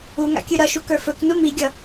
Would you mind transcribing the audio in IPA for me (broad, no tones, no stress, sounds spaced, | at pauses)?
u ŋ a̰ kʲ ʉ ɾ ʌ ʃ u k ə˞ f ɵ k n u m i ɡʲ ʌ